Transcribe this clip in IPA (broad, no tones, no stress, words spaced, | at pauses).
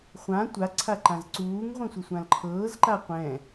χʷã tʷaǀʰaǃãz ǀuːŋʁʷĩsʷɯsʷãl ǃʰɤːzǃa qʷɛ̃